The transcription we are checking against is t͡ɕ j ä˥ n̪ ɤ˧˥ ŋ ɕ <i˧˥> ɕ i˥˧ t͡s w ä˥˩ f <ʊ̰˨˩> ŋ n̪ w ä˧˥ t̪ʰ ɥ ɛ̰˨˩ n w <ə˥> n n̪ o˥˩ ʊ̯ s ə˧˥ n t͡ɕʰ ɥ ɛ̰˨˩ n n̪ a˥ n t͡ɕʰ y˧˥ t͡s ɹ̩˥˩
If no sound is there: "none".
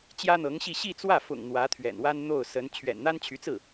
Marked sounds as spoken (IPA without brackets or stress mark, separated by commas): i˥˧, ʊ̰˨˩, a˥